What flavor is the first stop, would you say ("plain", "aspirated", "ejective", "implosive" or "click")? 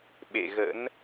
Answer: implosive